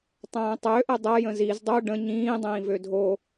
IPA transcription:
tˤ ə̃ː tˤ ø ʔ ə dˤ ɐ j ə̃ z i z dˤ o ɖ ə̃ ɲ ĩː dˤ ĩː v ø dʱ o

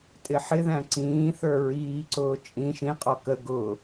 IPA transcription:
tʼ ɪ ħ ɪ ð æ̃ ǀ ĩː θ ə˞ ɹ iː ǀ ʊː t͡ʃʼ ĩ ʃ ĩ qʼ ɔ k ə ɡ ʊ

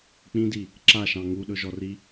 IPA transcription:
k͡p ĩ d i | ǁ a ʃ ɑ̃ ŋ u ɗ ɵ ʒ ɔ r i

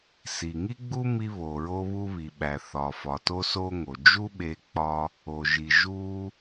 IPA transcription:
s i˩ ŋ i˥ ɡ͡b u˥ m i˧ β o˩ ɹ o˧ β u˧ β i˩ ɓ æ˩ θ ɒ˩ f ɒ˩ t o˧ s o˧ ŋ o˩ d͡ʒ u˥ ɓ e˧ k͡p ɒ˧ | o˩ ʒ i˩ ʒ u˧

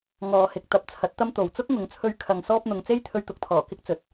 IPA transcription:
ŋ ɔː˨ h ɪ˨ k̚ t̪ ɐ˨ p̚ t͡sʰ ɐ˨˥ t̚ t̪ ɐ˥ m t̪ o˨ w t͡s ʊ˥ k̚ ŋ ʊ˨˧ ŋ t͡sʰ ɵ˧ ɥ kʰ ɐ˨ ŋ s ɔː˧ p̚ n̪ ʊ˨ ŋ t͡s e˥ j t̪ʰ ɵ˧ ɥ t̪ ʊ˨˥ k̚ t̪ʰ ɔː˨˩ k ɪ˥ k̚ t͡s ɵ˨˥ t̚

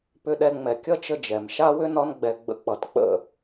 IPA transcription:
p ʏ˧ ɗ ɛ˧ ŋ͡m ɛ˨ kʲ ʌ˦ t͡ʃ ə˦ d͡ʒ ɛ˨ m ʃ a˦ w ʏ˦ n ɒ˧ n ɡ͡b ɛ˨ ɡ͡b ə̰˧ k͡p ʌ˨ t k͡p ə̰˦˨

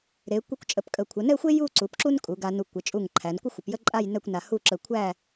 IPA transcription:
ɾ e˩˧ kʷ i˧ kʷ t͡ʃʼ ə˩˧ p kʼ ə˧˩ kʷʰ ə˩˧ n ɛ˥˧ xʷ e˥ j u˥˧ ǀ u˩˧ p ǁ u˥ n kʼ u˩˧ ɡ a˧ n u˧˩ kʷ ə˩˧ t͡ʃʼ u˧˩ ŋ ǃʰ æ˩˧ n kʷ ə˥ xʷ ə˩˧ p j ə˥ ǃʼ a˥˧ j n ɛ˥˧ kʷ n a˧ h u˥˧ ǁ ə˧ kʷʰ æ˥˧

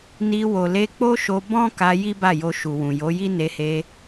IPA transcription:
n i˧ w o˨ l e˧ k͡p o˦ ʃ o˧ b ɔ̃˦ k a˧ j i˦ b a˦˨ j o˧ ʃ u˨ w ũ˨ j o˨˦ j i˦ n e˧ h e˧

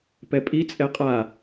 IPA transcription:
p ɛ pʼ i t͡sʼ ɛ qʼ a

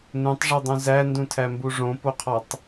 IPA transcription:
n ũ tˤ ʐ i dˤ ũ z æ n d ũ tʰ æ m b u ʐ õ p o qʰ ɒ tˤ

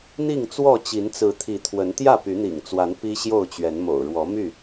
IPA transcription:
n̪ i˥˨ ŋ t͡s w ɔ˥˨ t͡ɕ i˨˦ n t͡s ɹ̩˨˦ t̪ʰ i˨˦ t̪ʰ w ə˨˦ n t̪ j ä˥˨ p y˨˦ n̪ ḭ˨˩ ŋ t͡s w a˨˦ n p i˦ ɕ j o˥˨ ʊ̯ t͡ɕ ɥ ɛ˨˦ n m o̰˨˩ ʊ̯ ɻ w ɔ˨˦ m y˥˨

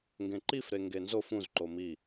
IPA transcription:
ŋ ɡ ẽ ǃ i f ɾ e ŋ ɡ e n z o f ũ z ǃ o m i

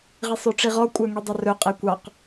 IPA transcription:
ʁ i sˤ œ ʈ͡ʂ i ʁ ɔ kʷʼ œ ŋ i dˤ ɵ r ɵ qʼ e kʷ ɑ q

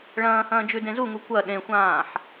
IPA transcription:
ɭ ɐ̃ː h ɐ̃ː d͡ʒ ʉ d ẽ z u ŋ u kʷ ɐ ɗ ẽ xʷ ãː ħ

